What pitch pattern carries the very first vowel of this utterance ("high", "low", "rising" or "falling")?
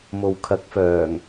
low